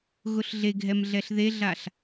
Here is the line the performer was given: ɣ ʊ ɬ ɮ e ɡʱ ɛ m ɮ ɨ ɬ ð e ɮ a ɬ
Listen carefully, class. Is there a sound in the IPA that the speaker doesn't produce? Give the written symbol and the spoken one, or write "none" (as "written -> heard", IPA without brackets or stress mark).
ɨ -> ɛ